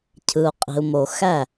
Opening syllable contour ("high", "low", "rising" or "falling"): low